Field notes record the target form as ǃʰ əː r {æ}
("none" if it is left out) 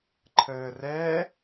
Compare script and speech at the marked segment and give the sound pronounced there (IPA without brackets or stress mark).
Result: ɛ